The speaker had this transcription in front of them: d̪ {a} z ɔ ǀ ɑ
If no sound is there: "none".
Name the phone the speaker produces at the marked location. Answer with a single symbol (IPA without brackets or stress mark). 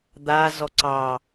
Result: a